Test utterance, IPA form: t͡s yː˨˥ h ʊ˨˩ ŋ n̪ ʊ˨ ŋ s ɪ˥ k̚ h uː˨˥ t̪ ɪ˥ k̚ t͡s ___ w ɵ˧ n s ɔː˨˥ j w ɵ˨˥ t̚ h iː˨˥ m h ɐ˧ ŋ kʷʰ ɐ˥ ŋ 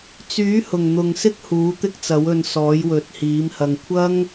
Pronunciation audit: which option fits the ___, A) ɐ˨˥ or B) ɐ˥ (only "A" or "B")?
A